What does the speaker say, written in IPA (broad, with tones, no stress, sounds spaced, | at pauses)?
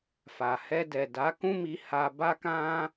f a˨ h ɛ˧ d ɛ˨ d a˨˦ k ũ˦ m i˧ h a˧ b a˦ k ã˦